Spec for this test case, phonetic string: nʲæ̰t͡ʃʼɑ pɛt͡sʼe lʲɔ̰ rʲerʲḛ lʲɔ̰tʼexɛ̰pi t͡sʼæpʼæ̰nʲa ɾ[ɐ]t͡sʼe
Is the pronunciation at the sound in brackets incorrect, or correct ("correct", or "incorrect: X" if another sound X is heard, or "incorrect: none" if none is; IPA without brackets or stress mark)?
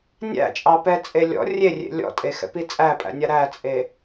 incorrect: æ